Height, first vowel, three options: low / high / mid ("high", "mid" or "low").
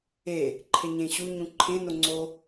mid